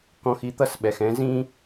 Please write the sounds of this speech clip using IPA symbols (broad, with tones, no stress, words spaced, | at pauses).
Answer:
kɔ̃˧xi˨˦t̪ʌ˦˨sɓɛ˨x ɛ̃˦zĩ˦